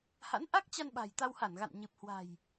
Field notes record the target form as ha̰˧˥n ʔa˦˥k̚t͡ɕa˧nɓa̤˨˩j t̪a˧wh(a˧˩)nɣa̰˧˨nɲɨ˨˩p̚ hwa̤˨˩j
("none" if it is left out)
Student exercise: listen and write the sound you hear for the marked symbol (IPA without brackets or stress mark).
a˧˩